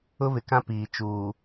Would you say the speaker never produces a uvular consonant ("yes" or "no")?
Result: yes